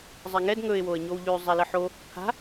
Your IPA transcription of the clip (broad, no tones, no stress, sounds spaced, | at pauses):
zˤ ɛ ŋ ɛ d ŋ ɵ ɪ̯ w o ə̯ ɲ o w ʎ ʉ zˤ ɛ l ə ħ o | pʰ a̤